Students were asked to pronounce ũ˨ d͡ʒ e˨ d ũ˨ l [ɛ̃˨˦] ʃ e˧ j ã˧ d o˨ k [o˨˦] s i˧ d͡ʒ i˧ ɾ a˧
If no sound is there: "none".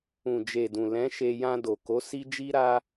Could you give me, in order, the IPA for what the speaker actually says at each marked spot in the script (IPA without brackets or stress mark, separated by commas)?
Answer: ɛ̃˨˦, o˨˦